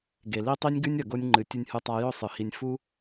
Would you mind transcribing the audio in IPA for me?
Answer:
ɡe˨li˦tˤi˦nʲɡʉ˦nʲ ɐ˨ɡo˧nʲŋ͡ǃɨ˨ tʲɨ˧nʲhɨ˧tˤa˧jɵ˦ sˤɨ˨hi˧nʲ fu˦

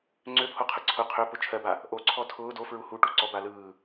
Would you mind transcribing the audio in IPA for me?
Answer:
ŋ͡ǀøpʰoqʰɯ ǀʰʊ qʰøpʊ t͡ʃʰɜba | ʔoǀʰɔ tʰʊː dofɹu huʈu ǀɔba lɯː

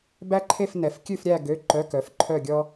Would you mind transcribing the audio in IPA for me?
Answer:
bæ˥ǃʰe˥˧f nɛ˨˦f kʲʉ˥˧fɾʲæ˥˧ ɡø˧˥˧ǃœ˧˥˧ kœ˨˦fǃʰœ˥˧ɡʲɔ˥

